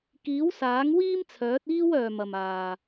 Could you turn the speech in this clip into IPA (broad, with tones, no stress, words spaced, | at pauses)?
kiː˨˥wsaː˨˥ŋ wiː˥mt͡sʰœː˨˥t̚iː˥w œː˨mɐ˨maː˨